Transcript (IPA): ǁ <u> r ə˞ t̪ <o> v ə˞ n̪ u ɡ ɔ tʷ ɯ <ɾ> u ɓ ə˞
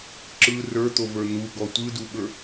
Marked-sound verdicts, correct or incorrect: incorrect, correct, incorrect

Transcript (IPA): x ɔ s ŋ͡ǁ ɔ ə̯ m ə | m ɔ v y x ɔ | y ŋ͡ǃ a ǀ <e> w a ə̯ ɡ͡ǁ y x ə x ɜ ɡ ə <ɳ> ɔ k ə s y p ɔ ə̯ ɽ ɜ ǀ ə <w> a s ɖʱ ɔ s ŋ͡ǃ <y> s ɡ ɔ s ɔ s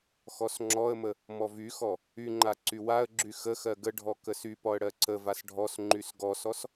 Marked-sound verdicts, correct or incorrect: incorrect, incorrect, incorrect, correct

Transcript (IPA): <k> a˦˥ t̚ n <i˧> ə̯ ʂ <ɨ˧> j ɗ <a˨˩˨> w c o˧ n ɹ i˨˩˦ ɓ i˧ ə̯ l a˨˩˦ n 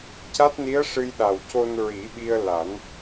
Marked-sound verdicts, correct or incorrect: incorrect, incorrect, correct, incorrect

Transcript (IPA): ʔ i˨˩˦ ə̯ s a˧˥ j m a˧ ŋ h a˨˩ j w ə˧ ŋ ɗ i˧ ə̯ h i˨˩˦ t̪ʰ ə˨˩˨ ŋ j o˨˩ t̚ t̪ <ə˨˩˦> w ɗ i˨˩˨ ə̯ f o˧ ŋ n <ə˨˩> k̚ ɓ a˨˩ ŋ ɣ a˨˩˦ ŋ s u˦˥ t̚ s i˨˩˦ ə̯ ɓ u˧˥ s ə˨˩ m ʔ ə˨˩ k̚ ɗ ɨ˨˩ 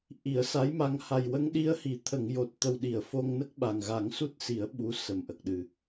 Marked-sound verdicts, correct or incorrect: incorrect, incorrect

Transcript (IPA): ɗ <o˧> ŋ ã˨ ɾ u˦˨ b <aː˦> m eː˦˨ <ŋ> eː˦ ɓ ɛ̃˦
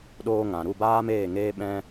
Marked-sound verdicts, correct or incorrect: incorrect, correct, correct

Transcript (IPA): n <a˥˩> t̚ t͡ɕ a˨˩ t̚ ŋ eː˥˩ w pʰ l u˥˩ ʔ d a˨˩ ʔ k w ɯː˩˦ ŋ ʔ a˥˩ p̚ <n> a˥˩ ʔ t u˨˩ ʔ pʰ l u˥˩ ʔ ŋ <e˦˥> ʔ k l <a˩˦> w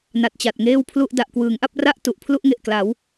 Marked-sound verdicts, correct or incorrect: incorrect, incorrect, incorrect, correct

